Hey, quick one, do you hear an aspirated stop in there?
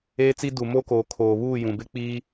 yes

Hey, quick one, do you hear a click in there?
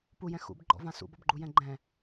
yes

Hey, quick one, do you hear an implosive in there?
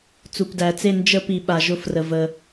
yes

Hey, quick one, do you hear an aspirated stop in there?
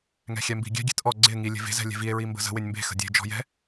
no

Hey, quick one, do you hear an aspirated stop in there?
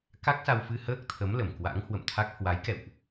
yes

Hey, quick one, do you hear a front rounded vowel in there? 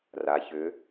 yes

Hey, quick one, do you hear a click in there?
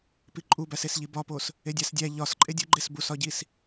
yes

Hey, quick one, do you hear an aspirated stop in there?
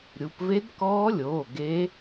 no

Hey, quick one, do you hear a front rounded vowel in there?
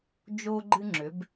yes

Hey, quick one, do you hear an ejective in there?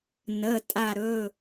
yes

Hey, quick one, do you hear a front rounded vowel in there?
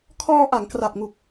no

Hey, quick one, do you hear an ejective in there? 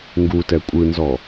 yes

